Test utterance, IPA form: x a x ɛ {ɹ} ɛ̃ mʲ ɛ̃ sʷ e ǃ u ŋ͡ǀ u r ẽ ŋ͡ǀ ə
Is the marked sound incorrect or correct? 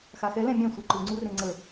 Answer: incorrect